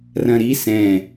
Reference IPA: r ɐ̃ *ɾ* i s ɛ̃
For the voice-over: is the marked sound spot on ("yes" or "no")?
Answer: yes